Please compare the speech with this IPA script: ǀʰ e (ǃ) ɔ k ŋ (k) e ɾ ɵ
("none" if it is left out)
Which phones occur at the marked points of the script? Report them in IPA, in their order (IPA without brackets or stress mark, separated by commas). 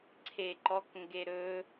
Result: ǃ, ɡ